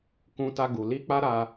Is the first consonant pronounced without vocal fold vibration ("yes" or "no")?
yes